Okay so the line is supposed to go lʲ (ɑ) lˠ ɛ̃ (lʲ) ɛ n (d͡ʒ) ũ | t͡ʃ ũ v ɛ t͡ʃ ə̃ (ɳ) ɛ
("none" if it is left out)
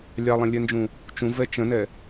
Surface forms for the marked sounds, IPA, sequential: ɑ, lʲ, d͡ʒ, n

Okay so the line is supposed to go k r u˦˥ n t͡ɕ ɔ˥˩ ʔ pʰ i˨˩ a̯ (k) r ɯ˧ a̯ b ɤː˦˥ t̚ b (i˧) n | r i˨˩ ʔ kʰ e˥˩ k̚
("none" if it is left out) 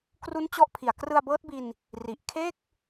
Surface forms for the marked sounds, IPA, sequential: k, i˧

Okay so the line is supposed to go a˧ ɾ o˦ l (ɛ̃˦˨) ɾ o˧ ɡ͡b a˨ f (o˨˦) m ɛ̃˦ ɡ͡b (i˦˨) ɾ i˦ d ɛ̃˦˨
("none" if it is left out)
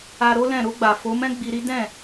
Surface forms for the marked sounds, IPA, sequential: ɛ̃˦˨, o˨˦, i˧

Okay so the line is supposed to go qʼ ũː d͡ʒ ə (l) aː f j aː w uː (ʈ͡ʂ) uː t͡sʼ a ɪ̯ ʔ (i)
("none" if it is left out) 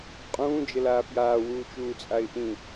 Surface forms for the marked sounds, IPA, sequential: l, t͡ʃ, ĩ

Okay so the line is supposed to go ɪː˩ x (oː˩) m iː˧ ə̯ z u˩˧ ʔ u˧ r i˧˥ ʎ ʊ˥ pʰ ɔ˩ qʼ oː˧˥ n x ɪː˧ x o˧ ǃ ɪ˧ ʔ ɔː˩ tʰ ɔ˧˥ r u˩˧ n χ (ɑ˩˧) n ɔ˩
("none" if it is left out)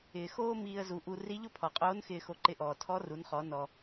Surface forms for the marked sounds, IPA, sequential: oː˥, ɔ˩˧

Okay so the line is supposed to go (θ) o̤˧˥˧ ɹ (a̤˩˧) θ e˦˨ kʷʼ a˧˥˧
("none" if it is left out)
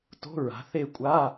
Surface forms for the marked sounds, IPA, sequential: t, a̤˩˧

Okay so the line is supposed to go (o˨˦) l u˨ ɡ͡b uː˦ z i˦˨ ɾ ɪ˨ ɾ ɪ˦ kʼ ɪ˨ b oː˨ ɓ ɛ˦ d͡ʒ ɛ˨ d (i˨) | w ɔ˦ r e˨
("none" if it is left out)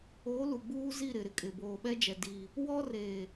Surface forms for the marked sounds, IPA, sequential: o˨˦, i˨

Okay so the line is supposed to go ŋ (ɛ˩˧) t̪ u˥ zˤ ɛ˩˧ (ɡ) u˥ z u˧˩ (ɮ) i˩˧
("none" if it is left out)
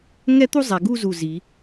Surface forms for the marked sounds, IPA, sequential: ɛ˥, ɡ, z

